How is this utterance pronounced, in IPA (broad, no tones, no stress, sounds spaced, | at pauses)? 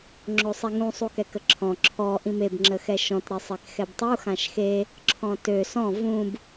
ŋ͡ǁ o sˤ e ŋ ũ sˤ u k ɛ k ə ǁʰ ɔ̃ ǁʰ ɔ ʔ ĩ m e b ŋ͡ǁ ə x ɛ ʃ ɔ̃ t ɾ e sˤ e k x ɛ b tˤ u x ã ʃ x e | ǁʰ ɔ̃ t ø s ɔ̃ v ũ b